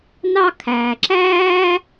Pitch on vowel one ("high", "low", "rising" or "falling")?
high